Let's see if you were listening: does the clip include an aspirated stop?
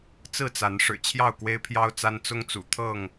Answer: yes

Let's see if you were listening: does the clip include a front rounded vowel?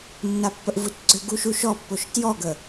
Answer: yes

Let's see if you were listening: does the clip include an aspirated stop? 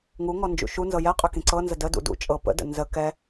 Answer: no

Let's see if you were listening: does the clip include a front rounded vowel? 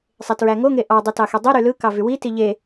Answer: yes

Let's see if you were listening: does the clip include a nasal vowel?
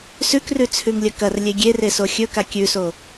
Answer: no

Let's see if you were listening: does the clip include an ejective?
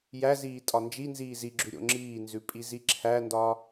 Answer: yes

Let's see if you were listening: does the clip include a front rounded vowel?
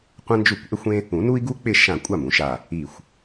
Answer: no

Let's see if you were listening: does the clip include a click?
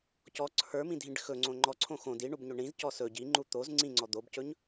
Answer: yes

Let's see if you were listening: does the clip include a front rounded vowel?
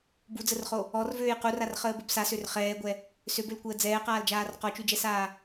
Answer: yes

